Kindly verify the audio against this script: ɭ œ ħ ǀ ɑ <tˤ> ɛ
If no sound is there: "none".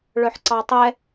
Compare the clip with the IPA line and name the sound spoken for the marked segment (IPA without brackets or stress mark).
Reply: tˤ